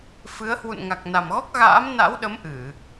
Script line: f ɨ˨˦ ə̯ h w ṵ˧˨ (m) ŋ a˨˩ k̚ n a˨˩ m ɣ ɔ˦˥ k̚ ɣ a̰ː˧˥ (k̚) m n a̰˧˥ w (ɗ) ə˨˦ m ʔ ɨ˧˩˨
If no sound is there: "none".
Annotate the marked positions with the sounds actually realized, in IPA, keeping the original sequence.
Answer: n, none, ɗ

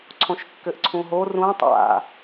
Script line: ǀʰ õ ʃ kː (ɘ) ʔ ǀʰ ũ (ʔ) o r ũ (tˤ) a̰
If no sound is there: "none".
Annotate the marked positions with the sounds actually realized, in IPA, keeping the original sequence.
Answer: ɘ, ɦ, tˤ

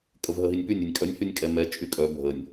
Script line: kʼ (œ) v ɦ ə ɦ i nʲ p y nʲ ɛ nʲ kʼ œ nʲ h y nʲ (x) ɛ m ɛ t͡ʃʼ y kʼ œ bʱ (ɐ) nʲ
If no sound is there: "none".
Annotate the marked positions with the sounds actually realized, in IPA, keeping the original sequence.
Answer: ə, kʼ, ə

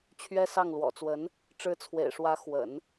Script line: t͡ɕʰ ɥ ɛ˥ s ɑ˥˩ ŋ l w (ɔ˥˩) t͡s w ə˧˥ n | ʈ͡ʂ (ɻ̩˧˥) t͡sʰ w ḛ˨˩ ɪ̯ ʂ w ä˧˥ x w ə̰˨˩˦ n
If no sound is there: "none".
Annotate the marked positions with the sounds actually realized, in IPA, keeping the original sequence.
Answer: ɔ̰˨˩, ɻ̩˧˥

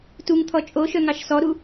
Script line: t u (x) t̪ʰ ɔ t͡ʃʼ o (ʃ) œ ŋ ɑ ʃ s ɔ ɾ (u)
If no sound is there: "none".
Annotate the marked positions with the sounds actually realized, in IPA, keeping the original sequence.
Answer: ŋ, ʃ, u

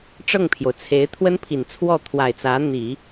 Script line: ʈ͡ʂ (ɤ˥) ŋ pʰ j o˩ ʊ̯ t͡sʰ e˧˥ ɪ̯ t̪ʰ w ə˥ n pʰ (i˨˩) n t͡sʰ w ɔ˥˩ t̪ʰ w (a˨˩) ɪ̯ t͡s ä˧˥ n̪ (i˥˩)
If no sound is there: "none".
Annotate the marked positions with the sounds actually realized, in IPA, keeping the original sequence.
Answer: ɤ˥˩, i˨˩, a˨˩, i˨˩˦

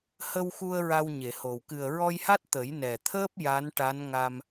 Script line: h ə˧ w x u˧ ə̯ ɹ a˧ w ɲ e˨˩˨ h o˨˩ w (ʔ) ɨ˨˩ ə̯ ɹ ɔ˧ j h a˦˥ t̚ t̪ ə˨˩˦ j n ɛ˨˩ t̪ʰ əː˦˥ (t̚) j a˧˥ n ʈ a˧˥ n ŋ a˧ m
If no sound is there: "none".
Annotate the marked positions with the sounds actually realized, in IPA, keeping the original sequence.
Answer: k, p̚

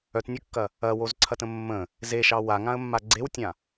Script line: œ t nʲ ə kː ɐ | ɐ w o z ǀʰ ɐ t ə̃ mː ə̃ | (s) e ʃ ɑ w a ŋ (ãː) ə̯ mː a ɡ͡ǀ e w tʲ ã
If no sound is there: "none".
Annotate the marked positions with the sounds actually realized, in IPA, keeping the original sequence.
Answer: z, ã

